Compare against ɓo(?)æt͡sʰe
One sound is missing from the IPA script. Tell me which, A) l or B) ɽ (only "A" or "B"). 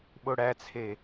B